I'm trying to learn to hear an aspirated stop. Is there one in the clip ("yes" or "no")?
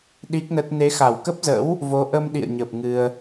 no